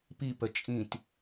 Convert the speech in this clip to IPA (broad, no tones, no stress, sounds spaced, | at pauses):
p i p ə t͡ʃʼ ĩ t